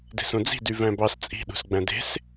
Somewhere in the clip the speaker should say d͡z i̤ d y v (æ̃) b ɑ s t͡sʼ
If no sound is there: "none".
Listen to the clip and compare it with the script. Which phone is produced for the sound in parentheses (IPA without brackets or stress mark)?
æ̃